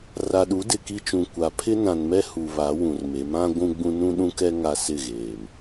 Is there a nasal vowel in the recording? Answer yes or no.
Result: yes